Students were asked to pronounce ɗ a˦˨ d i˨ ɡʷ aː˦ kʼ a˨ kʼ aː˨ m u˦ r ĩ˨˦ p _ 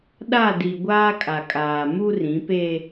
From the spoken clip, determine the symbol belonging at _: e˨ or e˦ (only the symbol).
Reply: e˦